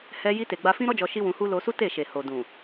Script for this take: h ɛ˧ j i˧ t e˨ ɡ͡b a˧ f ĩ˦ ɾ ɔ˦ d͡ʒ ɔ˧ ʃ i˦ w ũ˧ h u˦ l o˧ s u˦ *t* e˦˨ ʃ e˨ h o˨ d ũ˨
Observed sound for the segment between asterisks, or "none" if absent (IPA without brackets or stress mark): t